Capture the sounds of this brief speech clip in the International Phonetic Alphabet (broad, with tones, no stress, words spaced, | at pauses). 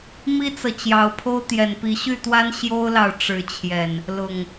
mi˦t͡sɤ˨ t͡ɕjɑ˨˦ʊ̯pʰo˦ʊ̯ t̪jɛ˨˩npi˨˦ɕy˥˨t̪wa˦n ɕjo˦ʊ̯lɑ˨ʊ̯ ʈ͡ʂɻ̩˨˦t͡ɕʰjɛ˨˩n | lʊ˨˩ŋ